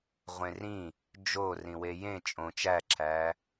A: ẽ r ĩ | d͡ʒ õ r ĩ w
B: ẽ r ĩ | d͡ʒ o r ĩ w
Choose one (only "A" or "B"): B